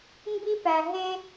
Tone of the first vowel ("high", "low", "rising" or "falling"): high